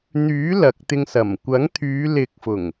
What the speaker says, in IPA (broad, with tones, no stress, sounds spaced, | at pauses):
n̪ yː˨˥ l ɐ˨ k̚ t̪ ɪ˧ ŋ s ɐ˨˩ m kʷ ɐ˨˥ ŋ t̪ʰ yː˨˧ l ɪ˨˥ k̚ f ʊ˨˩ ŋ